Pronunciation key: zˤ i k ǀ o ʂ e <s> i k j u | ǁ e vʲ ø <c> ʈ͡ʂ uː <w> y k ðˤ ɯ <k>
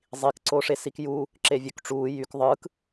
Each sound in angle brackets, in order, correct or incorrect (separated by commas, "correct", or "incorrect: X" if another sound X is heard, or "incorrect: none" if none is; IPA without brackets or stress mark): correct, incorrect: k, incorrect: j, correct